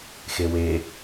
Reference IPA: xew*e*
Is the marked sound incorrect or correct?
correct